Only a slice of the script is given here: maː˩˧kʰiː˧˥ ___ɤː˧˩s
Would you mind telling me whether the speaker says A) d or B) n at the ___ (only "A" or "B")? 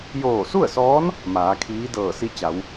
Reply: A